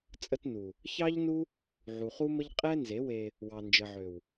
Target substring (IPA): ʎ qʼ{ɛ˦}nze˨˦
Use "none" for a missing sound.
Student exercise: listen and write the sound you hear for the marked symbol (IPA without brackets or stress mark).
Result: ɛ˦